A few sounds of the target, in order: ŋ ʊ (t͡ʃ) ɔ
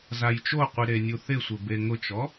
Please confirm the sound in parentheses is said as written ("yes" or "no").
yes